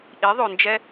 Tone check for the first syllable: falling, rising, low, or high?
rising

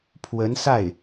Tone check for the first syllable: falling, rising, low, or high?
rising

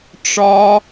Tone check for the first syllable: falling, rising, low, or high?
high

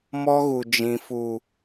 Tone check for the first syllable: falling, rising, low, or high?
high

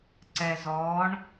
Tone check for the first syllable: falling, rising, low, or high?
low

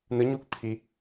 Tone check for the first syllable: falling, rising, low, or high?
rising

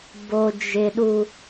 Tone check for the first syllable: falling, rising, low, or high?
low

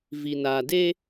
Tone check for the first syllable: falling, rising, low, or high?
low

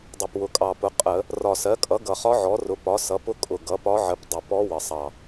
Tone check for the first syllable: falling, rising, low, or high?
low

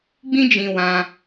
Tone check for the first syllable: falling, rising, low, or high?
high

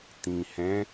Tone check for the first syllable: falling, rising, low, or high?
low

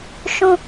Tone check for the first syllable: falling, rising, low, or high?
high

